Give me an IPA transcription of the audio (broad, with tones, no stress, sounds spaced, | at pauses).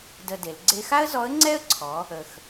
d ə˧ d e˩˧ l ɡ͡ǀ e˧ x a˥ ə̯ z ɔ˧˥ ə̯ ŋ͡ǀ ɛ˥ ə̯ ǀʰ ɔ˩˧ | ə˩ x